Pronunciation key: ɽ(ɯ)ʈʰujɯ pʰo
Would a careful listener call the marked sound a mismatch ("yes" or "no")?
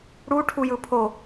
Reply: yes